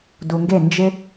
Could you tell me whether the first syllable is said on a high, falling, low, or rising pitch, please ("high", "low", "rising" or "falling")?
low